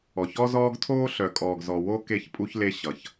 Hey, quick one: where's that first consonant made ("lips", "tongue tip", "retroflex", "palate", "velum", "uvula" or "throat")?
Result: palate